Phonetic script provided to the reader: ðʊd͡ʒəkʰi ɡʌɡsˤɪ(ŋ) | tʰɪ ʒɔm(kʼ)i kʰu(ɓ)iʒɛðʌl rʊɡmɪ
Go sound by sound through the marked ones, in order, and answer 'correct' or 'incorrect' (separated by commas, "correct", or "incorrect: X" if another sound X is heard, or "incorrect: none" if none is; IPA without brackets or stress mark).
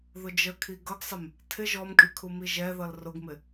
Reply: incorrect: m, correct, incorrect: m